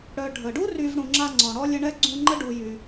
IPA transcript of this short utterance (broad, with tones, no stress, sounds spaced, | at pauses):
ɽ œ˨ ɖʱ ə˩ ɖ u˥ r y˦ v ɽ ũ˨ ŋ͡ǁ a˦ ŋ͡ǀ ɔ̃˩ ɽ ɔ˥ lʲ ə˦ ɳ ɛ˥ ɡ͡ǀ ũ˦ ŋ͡ǃ ə˥ ɖ u˨ j y˨